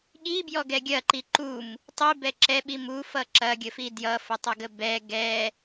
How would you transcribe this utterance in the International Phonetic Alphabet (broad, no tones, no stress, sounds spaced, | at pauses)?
ɠ i b j ɔ ɡ ɛ ɡʲ ɐ ǃ i ǃ u m | tˤ i b ɛ ǁ ɛ ɓ i m u f ʌ ǁ ɐ ɡʲ ə f i d j ʌ f ə tˤ ʌ ɡ ə b ɛ ɡ ɛ